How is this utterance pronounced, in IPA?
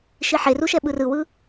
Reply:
ʃ i ħ e r u ʃ ɛ ɓ ɯ r ɯ w ɯ

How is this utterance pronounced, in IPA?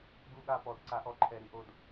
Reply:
ɡ u˦˨ ɠ a˦˨ p ɔ˨˦ d ǀ a˨˦ ʔ ɔ˨˦ ǃʰ ɛ˨˩ ɾ i˨˩ ʔ o˨˩ d

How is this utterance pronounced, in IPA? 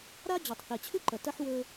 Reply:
ɾ a˦ d͡ʑ ɵ˨ tˤ θ e˨ t͡ɕʰ ʉ˦ ǃ ɐ˨ t ɐ˦ ħ w ɵ˦

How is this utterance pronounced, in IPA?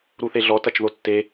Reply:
ɾ u θ e ɮ ɔ t ɐ t͡ʃ ð o tː e

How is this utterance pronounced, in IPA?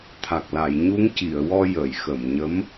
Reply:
t̪ʰ a˨˩ k̚ l a˨˩˨ j ɲ u˧˥ ŋ c i˨˩˨ ə̯ w ɔ˧ j ə˨˩˨ j x ə˨˩˨ m ɲ ə˧˥ m

